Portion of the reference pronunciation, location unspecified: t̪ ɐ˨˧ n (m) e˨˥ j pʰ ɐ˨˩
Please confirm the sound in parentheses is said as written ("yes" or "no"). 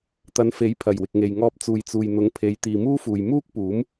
no